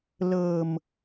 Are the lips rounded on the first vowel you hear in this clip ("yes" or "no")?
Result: no